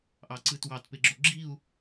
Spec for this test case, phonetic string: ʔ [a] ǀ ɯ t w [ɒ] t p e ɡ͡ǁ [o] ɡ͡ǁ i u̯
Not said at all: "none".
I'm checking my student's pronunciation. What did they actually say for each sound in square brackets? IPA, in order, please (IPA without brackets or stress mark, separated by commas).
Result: ɑ, ɑ, o